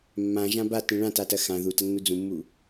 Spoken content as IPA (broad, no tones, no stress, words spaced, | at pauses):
mːãʒã batĩ ɭãtatɐ xã ðutɐnːu d͡zũmːu